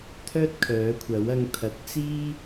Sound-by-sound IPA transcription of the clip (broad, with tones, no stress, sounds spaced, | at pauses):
t̪ʰ œː˥ t̚ kʰ œː˨˥ kʷʰ ɐ˨˥ w ɐ˧ ŋ t̪ʰ ɐ˨˥ t̚ t͡s iː˥